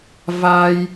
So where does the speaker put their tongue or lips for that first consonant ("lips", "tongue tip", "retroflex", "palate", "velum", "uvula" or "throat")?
lips